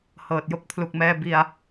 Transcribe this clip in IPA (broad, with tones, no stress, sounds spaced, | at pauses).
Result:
h ɤː˨˩ t̚ j o˥˩ k̚ pʰ l u˨˩ k̚ m ɛː˧ b i˧ a̯